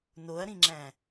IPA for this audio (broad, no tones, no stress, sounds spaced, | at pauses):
n o ɐ̯ ɾ ĩ ŋ͡ǁ æ̃